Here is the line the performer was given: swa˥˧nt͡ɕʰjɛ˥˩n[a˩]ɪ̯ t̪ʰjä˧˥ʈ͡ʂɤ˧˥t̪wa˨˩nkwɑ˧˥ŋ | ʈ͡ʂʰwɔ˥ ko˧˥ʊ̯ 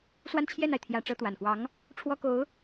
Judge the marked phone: correct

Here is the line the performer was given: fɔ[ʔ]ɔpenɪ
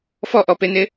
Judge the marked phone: correct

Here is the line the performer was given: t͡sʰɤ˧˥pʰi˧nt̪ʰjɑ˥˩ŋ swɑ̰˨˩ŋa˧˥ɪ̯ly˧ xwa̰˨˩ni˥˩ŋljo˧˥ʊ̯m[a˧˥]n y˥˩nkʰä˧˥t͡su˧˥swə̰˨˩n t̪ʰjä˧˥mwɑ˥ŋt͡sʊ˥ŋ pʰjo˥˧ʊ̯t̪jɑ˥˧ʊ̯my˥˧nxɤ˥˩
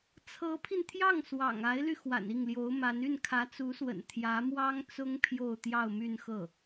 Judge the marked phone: correct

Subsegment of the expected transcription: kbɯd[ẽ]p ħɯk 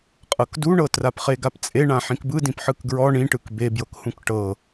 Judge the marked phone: incorrect: ĩ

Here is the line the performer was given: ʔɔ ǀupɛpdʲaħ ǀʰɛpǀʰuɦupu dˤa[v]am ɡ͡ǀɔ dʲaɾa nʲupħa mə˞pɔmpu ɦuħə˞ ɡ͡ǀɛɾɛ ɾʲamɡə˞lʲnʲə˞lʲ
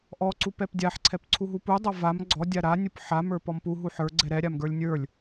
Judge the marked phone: correct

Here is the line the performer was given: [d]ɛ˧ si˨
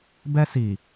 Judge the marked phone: incorrect: b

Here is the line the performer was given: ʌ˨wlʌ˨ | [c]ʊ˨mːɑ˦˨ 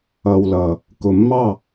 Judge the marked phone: incorrect: k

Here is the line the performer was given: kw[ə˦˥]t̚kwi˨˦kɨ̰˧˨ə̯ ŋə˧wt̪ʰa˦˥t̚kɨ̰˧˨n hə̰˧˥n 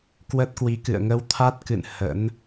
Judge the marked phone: correct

